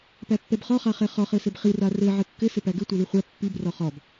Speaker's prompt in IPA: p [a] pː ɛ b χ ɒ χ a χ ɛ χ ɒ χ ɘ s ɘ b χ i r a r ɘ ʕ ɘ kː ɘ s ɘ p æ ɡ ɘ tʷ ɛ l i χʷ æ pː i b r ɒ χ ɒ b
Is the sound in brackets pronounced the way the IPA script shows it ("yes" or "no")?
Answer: no